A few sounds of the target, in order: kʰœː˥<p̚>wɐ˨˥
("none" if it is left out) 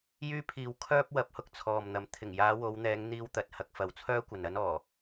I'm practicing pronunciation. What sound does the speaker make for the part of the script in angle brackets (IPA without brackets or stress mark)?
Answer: p̚